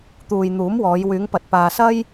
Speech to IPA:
t̪ uː˨ j n̪ uː˨˥ m w ɔː˨˧ j w yː˨˧ ŋ p ɐ˨ t̚ p aː˨ s ɐ˥ j

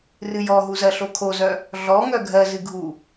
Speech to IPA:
r ɨ j ɔ ɦ u z ɜ ɬ o kʰ o z œ | ɮ ɔ ŋ œ ɡʱ ɜ z ɨ ɡʱ u

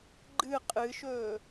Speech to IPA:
ɡ͡ǃ ɨ qʼ ɨ ʃ ɵː

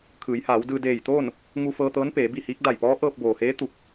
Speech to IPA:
kʰ ɯː˩˧ j h aː˩˧ w d ɯː˧ d eː˧˩ j t̪ oː˥˨ n | ŋ u˧ f ɤː˧ t̪ ɤː˧˥ n p eː˩˧ b i˥˨ h iː˧˥ k̚ d a˧˩ j p ɔː˧˥ ʔ ɤː˧ p̚ b oː˩ h eː˧˥ t̪ u˧˩ k̚

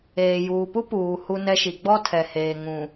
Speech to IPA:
eː˨ j uː˨ p u˦ p uː˨ h u˦ n ɛ˦ ʃ i˨ ɡ͡b ɔ˦ tʰ ɛ˨ h eː˨ ŋ ũ˨

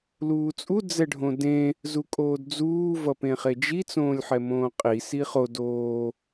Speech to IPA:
l uː t͡sʼ u d͡z ɛ ɖʱ õ d ẽ | z u kʼ oː d d͡z uː v ʌ p ẽ χ e d͡ʒ i t͡s õː lʲ ħ ɛ m õː qʼ i s i χ o d oː

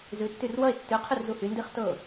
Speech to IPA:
z ʉ tː y r w ʌ e̯ tː ʉ qʰ y r z u h y n d i χ t ɤ

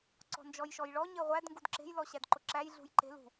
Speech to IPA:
ǀ ɔ̤ n d͡ʒ ɔ j ʃ ɔ j ɭ ɔ ɲ e ʁʷ æ d ŋ ɡ u d ǁ e̤ j l ɔ ɕ æ d ǃ ʊ ǁ æ j ɮ ṳ j ǃ e̤ l ṳ

